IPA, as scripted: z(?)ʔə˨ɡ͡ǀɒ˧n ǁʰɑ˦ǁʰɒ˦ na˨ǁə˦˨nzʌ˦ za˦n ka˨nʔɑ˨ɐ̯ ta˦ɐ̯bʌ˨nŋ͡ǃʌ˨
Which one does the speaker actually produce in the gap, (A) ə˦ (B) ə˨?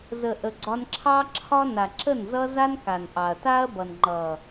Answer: B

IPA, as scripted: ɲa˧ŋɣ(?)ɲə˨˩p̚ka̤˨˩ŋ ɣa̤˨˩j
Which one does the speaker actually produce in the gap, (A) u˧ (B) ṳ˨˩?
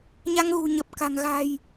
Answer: B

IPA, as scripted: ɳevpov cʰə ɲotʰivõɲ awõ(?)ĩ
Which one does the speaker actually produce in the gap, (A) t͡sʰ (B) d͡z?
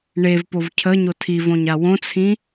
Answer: A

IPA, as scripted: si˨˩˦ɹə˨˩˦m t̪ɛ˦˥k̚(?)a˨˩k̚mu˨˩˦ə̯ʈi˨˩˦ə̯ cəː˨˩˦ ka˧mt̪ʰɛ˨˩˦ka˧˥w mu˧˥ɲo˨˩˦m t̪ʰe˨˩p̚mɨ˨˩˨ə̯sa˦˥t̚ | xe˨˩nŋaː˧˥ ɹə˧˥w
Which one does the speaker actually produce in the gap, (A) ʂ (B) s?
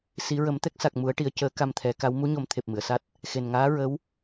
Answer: B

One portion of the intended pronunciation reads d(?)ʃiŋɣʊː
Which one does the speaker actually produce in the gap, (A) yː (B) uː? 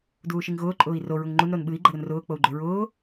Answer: B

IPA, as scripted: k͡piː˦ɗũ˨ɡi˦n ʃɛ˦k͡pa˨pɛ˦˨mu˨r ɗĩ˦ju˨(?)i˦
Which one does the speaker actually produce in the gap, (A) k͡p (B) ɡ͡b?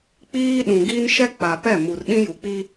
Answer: A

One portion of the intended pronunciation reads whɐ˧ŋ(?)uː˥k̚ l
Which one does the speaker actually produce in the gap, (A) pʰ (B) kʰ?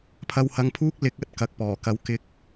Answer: A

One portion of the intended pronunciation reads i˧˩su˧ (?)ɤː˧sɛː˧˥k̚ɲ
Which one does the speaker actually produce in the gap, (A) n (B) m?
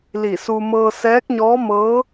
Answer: B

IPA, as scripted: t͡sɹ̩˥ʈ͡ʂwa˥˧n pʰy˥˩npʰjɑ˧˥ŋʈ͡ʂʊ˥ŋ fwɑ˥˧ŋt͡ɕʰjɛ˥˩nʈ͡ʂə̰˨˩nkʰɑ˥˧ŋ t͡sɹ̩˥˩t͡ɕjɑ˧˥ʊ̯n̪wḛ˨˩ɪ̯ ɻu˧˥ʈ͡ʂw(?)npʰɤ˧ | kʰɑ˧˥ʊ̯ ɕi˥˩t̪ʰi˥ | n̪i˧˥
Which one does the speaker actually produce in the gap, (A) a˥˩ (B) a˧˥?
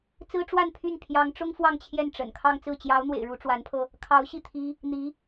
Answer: B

